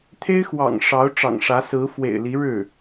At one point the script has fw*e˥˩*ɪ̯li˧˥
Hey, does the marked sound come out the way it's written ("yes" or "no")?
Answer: no